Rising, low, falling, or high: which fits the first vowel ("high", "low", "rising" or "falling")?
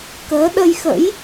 rising